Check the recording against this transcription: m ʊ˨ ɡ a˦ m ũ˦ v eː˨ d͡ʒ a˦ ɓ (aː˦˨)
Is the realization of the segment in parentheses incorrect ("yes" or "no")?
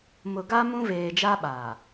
yes